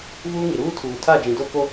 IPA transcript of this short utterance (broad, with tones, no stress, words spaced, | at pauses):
vuː˦ŋi˨ɾuː˦ tʰuː˨ tʰa˦˨d͡ʒĩ˨do˦ko˦